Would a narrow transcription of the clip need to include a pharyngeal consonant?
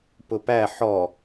yes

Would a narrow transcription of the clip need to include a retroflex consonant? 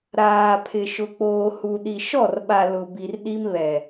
no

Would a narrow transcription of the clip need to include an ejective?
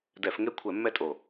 yes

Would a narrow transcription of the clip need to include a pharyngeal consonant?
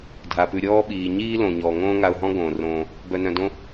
no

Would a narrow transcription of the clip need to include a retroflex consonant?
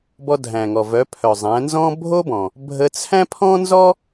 no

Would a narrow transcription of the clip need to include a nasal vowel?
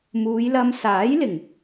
no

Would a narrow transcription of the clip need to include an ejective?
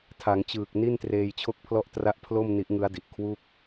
no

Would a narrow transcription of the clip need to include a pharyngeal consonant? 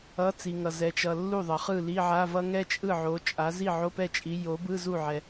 yes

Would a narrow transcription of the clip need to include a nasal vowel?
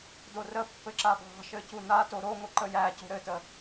no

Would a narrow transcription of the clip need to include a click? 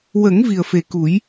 no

